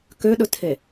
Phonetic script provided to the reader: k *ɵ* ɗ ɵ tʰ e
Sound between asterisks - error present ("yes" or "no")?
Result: yes